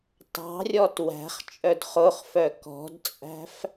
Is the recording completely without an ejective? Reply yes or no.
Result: no